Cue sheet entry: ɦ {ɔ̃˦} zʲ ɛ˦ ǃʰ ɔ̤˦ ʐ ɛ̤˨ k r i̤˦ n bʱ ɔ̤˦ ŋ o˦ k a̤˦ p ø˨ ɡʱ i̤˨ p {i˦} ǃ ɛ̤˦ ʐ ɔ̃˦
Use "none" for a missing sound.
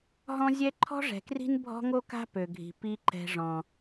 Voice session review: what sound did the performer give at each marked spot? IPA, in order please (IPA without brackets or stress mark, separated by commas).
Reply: ɔ̃˦, i˦